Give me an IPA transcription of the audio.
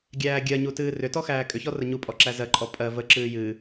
ɡʲ æː ɡʲ ɜ ɲ u t ɨː r ʏ t ɔ x æː kʼ ʏ ç ɔ r ə ɲ u pʼ ɔ ǁ æ z ɜ ǃʼ ɔ pʼ ɜ v ə ǁ ɨː j ɨ

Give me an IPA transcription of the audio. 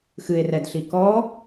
x ɨ e̯ r ɛ d ɬ i k ɔ

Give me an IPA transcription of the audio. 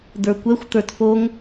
d̪ ə˞ kʷ ɛ xʷ t̪ ə˞ t f o ŋ

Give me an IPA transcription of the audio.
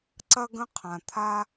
ǀ ɐ˥ ɡ ə̃˥ qʰ ã˩ t̪ʰ a˥

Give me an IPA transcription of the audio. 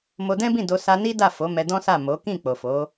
m o˧ d ɛ̃˦ b ĩ˦˨ d o˧ s a˧ n i˦ d a˦˨ f o˨˦ m ɛ˧ d ɔ̃˦ s a˦˨ m o˨˦ k ĩ˦˨ k͡p o˨ f o˨˦

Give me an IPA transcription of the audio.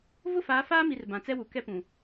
v ʊ˦˨ f aː˨˦ f aː˦ m i˨ r b ã˨ t͡s ɛ˦ w u˨ k ɛ˦ p ũ˨

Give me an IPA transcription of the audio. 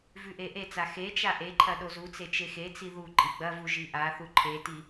v ʉ ʔ e ʔ e t͡s a x e t͡ʃ a ʔ e ǃʰ ɐ ɗ o z u t͡s e t͡ʃ e x e t͡s i ð u ǃʼ i ɡ͡b ɐ v u ʒ i ʔ a θ u ǃʰ e t i

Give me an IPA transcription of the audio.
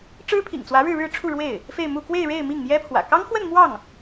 ʈ͡ʂ ɻ̩˥ pʰ ḭ˨˩ ŋ t͡s w ä˧˥ ɻ ɻ̩˥˧ ɻ ɻ̩˥˧ ʈ͡ʂʰ u˥˧ ɻ w e˥˩ ɪ̯ | f e˥˧ ɪ̯ m u˥˧ k w e˥˧ ɪ̯ ɻ e˥˧ ɪ̯ m i˥˩ ŋ m j ɛ˥ pʰ w ä̰˨˩ k ɑ˥ ŋ x w ə˥˧ n m w ɑ˥˩ ŋ

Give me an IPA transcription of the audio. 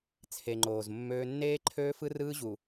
t͡sʰ e˨ ŋ͡ǃ oː˨ z mː øː˦ nː eː˦ ǃʰ øː˦ f ɯ˦ r ɯː˦ ʑ u˨

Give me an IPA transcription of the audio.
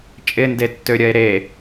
t͡ʃʼ ɪ n d e tː ø ɾʲ ɐ e̯ ɾ e

